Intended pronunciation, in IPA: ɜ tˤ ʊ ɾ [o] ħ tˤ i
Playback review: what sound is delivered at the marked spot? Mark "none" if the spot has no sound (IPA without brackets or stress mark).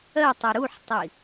u